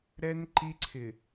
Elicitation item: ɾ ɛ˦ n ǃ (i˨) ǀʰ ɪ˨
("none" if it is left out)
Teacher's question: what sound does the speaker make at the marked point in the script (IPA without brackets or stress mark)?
i˦